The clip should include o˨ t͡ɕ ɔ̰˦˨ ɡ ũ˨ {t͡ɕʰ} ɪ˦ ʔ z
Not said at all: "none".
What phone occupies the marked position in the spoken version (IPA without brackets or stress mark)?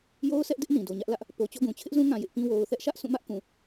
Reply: t͡ɕʰ